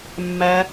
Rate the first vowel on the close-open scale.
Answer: open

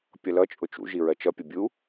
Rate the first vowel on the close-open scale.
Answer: mid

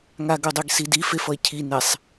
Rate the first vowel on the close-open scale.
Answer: open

